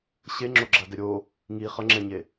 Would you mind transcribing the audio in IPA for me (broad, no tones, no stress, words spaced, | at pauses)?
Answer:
ɕe ŋ͡ǁoɡ͡ǁadɛɾʲo | ŋi χʌŋ͡ǁɛɲe